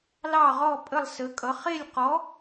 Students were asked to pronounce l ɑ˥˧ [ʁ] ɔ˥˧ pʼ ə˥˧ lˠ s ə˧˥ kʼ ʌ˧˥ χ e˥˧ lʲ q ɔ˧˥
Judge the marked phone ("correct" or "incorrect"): correct